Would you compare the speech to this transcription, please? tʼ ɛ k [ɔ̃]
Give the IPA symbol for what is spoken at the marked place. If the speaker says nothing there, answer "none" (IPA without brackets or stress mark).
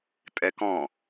ɔ̃